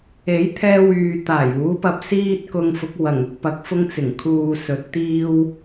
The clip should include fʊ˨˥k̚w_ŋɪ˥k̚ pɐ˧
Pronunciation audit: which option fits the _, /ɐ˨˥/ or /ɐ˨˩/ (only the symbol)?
ɐ˨˩